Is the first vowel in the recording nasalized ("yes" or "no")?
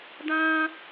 yes